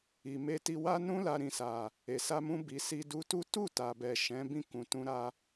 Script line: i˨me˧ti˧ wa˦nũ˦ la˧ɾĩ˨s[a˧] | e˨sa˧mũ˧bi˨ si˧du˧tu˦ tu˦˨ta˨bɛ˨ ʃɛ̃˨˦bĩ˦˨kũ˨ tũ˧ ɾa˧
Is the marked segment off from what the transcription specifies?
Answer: yes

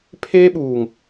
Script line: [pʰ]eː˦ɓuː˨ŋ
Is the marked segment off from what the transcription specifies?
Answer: no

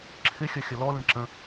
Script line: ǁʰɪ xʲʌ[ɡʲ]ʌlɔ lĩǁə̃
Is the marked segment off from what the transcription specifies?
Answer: yes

